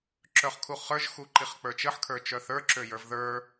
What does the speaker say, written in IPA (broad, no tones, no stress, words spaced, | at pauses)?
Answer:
ǁœχkʰuχə˞ʒ xuǃiχk͡pə˞t͡ʃəħ kʰə˞t͡ʃœθə˞ ǁøjə˞vðə˞